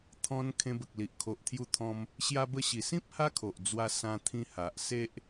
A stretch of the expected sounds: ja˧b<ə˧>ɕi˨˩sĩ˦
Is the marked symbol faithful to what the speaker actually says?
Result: yes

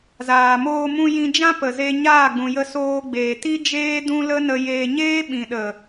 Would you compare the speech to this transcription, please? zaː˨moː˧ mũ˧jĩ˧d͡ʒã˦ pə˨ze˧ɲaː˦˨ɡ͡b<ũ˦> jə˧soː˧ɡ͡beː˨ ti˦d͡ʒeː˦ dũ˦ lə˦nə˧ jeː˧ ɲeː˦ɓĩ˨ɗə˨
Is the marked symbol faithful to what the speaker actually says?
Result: no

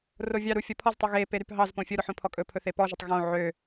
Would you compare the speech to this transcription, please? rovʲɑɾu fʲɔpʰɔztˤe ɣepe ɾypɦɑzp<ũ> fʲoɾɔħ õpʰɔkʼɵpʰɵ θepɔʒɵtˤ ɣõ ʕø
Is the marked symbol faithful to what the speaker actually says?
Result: no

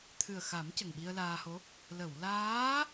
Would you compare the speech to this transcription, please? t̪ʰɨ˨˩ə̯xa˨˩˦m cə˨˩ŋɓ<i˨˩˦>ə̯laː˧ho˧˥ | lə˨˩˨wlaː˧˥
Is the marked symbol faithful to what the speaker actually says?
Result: no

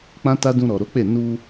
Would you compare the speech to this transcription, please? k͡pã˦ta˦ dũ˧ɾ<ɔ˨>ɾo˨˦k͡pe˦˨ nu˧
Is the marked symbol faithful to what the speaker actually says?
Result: yes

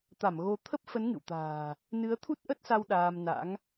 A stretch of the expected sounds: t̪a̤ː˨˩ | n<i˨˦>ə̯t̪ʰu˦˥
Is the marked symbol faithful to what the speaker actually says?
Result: no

